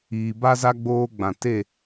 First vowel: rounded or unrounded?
unrounded